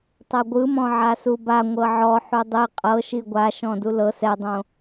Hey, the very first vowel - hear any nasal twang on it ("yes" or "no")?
no